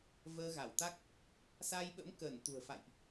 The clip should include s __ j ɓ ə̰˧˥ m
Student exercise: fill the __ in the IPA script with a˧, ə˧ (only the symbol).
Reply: a˧